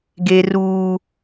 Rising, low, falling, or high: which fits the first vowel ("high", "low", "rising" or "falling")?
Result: high